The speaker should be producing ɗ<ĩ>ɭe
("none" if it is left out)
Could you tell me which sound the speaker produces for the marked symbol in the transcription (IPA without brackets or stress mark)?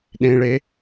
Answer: ẽ